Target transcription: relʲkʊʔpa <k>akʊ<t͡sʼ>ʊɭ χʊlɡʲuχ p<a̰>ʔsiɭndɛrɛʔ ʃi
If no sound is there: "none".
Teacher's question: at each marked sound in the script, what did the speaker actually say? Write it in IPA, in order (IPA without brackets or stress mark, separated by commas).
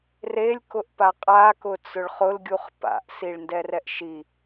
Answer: qʼ, t͡s, a̰